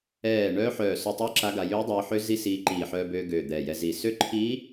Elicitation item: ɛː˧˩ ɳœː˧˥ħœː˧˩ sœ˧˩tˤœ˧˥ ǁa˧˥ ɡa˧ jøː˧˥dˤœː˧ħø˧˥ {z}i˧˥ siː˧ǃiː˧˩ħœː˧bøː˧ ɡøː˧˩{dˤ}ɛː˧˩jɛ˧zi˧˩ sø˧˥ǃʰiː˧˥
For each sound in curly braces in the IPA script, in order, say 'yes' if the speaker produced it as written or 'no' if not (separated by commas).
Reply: yes, no